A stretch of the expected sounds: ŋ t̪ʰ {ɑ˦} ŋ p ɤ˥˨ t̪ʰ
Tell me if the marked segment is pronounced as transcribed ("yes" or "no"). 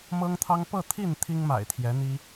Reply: yes